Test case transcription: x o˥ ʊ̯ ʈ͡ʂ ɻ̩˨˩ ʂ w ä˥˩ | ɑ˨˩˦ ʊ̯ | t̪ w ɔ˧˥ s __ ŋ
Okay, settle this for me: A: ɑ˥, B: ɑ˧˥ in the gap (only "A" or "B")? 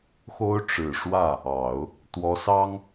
A